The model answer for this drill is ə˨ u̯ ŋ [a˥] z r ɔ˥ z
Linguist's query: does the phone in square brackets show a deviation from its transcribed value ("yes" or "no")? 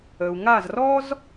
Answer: yes